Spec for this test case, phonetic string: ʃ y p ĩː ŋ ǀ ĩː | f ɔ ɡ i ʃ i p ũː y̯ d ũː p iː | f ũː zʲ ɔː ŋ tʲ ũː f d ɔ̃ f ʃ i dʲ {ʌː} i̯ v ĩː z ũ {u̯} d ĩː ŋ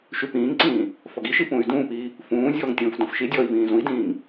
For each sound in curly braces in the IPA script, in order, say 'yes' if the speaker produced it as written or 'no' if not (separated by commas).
no, no